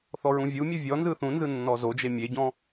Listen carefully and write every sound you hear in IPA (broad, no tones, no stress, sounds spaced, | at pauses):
θ ɔ ɹ ũ vʲ u mʲ ɯ vʲ ɔ n z ɯ θ ũ n z ɯ nː ɔ z o d͡ʒ e mʲ e ɟ ɔ̃